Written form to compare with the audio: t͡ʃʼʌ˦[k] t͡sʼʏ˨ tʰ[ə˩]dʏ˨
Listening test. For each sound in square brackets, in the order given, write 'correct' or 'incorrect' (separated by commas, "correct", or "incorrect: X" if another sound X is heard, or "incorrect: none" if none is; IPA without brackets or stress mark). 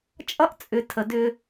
incorrect: ʔ, correct